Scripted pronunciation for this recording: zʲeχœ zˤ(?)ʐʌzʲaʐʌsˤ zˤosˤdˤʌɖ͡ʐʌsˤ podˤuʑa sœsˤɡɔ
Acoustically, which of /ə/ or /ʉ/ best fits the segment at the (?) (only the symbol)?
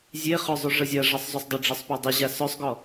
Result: ʉ